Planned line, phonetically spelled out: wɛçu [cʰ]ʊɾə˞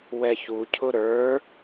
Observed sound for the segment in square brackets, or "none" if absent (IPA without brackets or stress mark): cʰ